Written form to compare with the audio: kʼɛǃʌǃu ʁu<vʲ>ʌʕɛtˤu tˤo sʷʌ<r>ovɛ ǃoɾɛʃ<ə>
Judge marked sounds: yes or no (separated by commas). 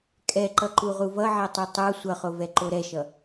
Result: no, no, no